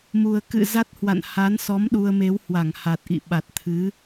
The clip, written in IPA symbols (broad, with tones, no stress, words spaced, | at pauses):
mu˨˩ə̯kɨ̰˧˨ za˦˥t̚hwa̰˧˨n ha˨˦nsɔ˨˦m ɗu˧ə̯me˨˦w hwa˧˩ŋ ha˨˩t̚ʔḭ˧˨ ɓa˨˩t̚t̪ʰɨ˨˦